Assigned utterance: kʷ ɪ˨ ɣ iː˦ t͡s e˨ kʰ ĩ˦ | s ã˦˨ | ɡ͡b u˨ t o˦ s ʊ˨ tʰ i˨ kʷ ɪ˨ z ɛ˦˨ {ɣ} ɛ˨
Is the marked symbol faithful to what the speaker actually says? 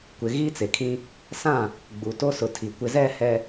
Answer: no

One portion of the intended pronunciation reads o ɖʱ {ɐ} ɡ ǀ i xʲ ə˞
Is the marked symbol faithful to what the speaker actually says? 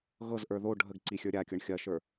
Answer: no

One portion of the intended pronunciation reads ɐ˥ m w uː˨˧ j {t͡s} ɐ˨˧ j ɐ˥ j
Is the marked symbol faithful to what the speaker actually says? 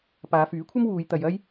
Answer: no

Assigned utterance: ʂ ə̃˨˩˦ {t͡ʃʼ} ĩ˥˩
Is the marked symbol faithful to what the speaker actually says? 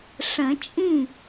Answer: yes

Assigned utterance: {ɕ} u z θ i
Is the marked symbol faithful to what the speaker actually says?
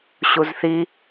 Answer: yes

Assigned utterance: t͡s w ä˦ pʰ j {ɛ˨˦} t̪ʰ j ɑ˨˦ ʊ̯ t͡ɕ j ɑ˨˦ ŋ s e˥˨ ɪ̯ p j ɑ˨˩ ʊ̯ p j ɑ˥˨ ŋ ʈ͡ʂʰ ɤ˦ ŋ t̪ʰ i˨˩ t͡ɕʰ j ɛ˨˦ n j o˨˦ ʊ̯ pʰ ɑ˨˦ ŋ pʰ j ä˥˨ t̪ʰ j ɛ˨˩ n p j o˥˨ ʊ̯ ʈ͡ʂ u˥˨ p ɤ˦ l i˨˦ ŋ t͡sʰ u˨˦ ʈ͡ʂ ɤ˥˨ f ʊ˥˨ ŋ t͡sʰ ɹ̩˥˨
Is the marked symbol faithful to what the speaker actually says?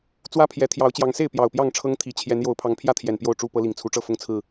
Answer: yes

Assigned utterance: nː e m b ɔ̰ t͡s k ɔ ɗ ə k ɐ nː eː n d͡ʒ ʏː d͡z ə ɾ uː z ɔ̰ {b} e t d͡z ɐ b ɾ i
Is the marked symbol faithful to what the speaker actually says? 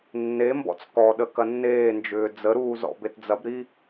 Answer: yes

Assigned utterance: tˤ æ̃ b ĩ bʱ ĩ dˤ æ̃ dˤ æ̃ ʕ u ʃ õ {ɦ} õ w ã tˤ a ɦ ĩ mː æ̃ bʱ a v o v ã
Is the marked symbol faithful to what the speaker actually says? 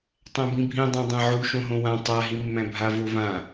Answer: yes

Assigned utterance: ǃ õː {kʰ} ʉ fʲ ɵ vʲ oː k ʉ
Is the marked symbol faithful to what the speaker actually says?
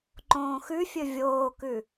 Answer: no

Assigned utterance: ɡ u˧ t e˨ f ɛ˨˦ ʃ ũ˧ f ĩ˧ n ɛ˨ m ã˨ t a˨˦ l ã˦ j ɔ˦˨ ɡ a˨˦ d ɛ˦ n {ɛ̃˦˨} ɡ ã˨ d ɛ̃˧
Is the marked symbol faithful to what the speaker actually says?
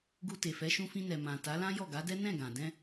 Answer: yes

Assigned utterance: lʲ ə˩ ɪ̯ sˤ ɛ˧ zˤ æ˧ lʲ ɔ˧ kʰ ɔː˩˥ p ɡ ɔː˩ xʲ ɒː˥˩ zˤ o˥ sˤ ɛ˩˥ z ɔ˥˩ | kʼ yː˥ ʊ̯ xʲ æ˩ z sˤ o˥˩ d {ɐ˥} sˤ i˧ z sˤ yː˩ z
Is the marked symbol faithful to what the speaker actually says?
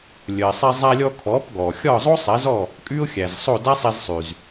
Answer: no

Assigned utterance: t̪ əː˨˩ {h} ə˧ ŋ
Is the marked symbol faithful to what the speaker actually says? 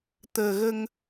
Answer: no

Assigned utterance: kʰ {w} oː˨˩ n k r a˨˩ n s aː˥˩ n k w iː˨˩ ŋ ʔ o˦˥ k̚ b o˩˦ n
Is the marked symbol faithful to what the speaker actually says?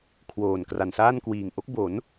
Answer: yes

